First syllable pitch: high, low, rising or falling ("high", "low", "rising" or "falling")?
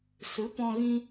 rising